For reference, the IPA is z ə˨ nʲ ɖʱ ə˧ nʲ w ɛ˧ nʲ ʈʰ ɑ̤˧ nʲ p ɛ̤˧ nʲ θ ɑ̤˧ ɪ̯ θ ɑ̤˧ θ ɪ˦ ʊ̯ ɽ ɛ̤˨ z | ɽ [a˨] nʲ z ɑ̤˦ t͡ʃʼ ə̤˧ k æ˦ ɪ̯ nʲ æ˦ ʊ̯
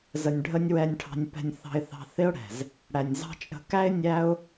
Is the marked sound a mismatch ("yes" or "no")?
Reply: yes